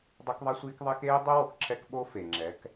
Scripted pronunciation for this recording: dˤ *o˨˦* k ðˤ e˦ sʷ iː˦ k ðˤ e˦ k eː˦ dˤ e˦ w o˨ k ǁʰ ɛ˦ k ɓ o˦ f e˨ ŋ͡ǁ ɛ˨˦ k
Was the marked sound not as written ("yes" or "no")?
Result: yes